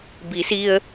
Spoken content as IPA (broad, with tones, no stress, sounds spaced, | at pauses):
b i˩˧ s i˧ ə̯